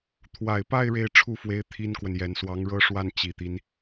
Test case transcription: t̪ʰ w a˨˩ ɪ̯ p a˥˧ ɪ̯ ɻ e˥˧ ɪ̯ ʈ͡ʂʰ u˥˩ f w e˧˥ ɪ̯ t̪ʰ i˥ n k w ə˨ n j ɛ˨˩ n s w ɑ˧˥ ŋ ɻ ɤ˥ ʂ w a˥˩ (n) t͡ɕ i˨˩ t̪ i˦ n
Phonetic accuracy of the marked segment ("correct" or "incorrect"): correct